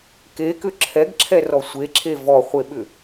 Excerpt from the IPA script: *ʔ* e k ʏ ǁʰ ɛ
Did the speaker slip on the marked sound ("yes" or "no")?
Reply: yes